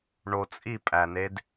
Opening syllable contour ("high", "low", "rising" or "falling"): low